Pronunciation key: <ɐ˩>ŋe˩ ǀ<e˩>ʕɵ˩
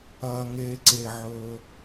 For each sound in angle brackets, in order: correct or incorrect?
incorrect, correct

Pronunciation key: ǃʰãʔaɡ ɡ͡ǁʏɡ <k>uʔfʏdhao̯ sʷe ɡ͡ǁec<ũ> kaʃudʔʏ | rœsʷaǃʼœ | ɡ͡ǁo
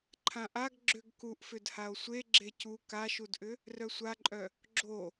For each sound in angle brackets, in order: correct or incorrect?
correct, incorrect

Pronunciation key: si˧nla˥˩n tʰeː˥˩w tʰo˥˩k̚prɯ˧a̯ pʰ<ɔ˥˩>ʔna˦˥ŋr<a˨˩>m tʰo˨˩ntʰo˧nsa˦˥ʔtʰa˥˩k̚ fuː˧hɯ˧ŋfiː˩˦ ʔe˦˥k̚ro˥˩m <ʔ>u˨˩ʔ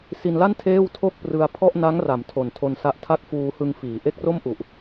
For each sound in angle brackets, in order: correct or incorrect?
correct, incorrect, correct

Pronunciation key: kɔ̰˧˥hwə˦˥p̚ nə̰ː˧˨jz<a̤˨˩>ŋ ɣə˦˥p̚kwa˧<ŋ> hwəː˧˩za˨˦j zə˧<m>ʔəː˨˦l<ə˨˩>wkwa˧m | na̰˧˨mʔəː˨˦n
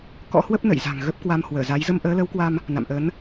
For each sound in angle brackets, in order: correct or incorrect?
correct, incorrect, correct, incorrect

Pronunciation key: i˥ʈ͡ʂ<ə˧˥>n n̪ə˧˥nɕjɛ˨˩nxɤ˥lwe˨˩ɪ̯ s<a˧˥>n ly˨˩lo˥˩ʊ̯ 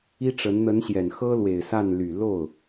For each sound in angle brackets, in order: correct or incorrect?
correct, incorrect

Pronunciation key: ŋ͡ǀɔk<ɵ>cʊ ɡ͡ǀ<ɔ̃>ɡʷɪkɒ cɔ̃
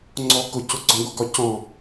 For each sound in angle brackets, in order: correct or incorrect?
incorrect, correct

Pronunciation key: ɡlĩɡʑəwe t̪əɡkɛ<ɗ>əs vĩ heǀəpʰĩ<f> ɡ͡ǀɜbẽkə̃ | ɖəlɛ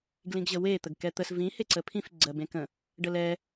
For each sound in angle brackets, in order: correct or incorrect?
incorrect, correct

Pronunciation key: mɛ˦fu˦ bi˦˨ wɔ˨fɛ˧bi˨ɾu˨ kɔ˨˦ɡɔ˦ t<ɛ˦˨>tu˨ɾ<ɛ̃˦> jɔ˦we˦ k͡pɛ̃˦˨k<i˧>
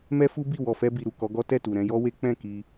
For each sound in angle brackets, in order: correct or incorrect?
correct, incorrect, correct

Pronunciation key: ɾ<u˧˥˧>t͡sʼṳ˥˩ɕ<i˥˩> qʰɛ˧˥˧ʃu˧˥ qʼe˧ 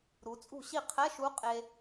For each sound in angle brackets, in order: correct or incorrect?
incorrect, correct

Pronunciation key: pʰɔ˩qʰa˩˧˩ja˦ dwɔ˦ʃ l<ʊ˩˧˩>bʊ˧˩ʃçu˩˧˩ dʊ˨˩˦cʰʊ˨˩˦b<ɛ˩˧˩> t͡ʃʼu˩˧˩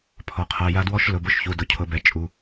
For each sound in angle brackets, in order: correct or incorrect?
correct, correct

